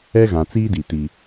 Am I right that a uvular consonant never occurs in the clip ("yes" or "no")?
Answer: yes